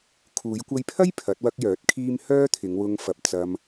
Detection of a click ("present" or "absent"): absent